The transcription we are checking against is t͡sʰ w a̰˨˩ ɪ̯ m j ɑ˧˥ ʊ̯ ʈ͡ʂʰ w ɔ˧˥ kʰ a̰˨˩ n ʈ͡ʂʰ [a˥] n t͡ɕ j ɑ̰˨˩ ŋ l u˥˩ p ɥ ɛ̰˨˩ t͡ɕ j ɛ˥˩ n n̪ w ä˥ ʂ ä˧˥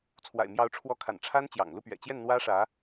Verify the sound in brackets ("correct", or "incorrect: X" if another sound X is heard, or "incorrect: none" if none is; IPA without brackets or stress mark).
correct